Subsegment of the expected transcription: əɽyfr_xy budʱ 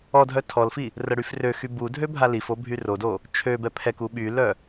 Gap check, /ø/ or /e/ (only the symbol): ø